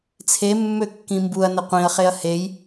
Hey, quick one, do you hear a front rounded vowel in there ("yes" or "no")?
yes